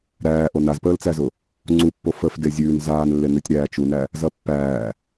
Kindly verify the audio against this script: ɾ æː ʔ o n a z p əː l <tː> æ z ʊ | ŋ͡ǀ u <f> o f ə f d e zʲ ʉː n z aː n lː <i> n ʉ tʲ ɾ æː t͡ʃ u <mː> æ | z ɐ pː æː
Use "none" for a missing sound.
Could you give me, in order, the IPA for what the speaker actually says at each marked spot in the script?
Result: t͡s, pː, e, n

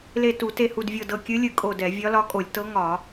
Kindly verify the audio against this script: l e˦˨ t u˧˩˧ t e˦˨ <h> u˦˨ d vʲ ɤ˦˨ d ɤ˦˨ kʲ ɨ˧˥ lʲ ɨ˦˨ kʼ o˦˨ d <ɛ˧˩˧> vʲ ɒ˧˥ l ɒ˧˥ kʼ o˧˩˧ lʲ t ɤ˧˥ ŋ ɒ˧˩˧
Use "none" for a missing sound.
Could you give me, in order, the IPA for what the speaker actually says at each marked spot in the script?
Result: h, ɛ˧˩˧

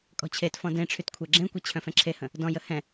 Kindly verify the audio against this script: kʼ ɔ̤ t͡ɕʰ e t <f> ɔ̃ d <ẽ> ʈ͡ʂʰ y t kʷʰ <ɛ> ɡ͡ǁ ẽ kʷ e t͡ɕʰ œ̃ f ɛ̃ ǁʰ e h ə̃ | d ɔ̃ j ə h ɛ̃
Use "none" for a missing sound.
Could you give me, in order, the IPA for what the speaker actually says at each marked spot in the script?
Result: f, ẽ, ɛ

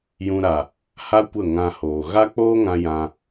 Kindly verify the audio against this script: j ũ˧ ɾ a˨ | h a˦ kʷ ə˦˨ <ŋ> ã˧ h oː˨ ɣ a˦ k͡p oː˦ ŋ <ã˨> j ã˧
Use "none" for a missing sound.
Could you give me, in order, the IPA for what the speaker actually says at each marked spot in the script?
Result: ŋ, ã˧

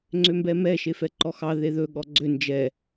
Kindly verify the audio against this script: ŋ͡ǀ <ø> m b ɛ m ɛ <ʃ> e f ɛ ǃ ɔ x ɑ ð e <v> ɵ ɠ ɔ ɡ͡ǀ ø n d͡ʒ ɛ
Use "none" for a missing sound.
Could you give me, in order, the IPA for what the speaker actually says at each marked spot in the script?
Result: ø, ʃ, ð

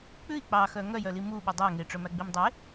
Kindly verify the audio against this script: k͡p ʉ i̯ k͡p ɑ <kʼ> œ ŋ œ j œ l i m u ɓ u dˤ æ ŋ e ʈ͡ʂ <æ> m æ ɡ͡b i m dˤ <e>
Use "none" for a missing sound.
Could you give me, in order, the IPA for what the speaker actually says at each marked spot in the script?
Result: x, œ, e

